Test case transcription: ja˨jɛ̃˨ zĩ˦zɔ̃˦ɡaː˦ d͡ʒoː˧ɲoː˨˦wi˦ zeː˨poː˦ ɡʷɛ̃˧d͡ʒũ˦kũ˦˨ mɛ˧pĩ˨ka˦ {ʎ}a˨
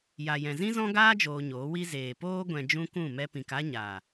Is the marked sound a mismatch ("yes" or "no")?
yes